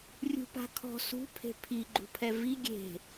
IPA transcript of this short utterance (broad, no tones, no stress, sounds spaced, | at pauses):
rʲ ṳ p a̤ kʰ ɔ̤ s ṳ pʰ e̤ pʰ i ɡ͡ǃ ṳ pʰ ɛ v i ɡʲ e̤